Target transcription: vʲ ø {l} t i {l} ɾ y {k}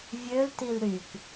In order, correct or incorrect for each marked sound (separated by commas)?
correct, correct, correct